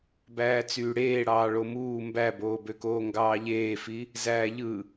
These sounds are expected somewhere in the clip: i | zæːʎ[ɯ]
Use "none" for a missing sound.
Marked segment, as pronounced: ɯ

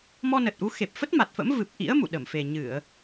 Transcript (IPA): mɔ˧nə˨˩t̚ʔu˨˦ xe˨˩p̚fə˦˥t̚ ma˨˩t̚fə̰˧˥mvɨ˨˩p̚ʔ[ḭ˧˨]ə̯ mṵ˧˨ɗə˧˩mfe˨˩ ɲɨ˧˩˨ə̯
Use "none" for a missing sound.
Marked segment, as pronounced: ḭ˧˥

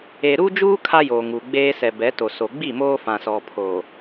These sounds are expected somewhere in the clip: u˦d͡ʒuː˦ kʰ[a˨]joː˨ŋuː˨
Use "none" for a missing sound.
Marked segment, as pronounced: a˦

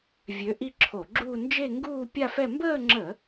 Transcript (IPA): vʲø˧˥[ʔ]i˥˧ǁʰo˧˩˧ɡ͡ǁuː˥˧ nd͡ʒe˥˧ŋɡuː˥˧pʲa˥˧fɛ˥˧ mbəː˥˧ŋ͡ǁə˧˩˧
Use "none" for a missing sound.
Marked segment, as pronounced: ʔ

